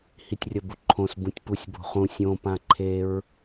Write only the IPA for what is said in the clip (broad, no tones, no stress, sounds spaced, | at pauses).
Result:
h i tʲ rʲ ʌ b u ǃʰ õ s b ũ tʲ p u sʲ b o̤ χ ũ sʲ õ p ã ǃʰ e ɹ